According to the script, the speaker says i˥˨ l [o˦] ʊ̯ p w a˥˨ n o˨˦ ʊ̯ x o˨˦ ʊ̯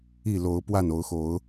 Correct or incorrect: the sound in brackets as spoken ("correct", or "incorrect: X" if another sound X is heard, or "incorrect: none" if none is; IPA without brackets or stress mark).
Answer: incorrect: o˨˦